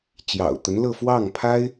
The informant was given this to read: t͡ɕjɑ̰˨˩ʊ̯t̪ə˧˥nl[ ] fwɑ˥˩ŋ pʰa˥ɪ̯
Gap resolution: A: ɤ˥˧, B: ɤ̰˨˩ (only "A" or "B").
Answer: A